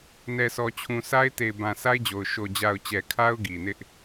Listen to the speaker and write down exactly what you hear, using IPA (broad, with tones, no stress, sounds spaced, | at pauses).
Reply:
n ɛ˨ s ɔ˨ t͡ɕʰ ũ˨ s a˦ ɪ̯ t e˨ ɪ̯ b ã˨ s a˦ ɪ̯ d͡ʑ o˨ ʊ̯ ʃ o˨ d͡ʑ a˨ ʊ̯ t͡ɕ ɛ˨ kʰ a˦ ʊ̯ ɡ i˨ n ɪ˦ ʔ